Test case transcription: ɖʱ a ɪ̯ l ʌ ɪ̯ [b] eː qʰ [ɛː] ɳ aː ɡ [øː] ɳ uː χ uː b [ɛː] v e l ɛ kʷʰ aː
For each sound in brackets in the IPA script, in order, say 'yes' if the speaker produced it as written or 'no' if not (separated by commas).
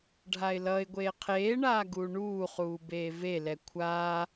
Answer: no, no, no, no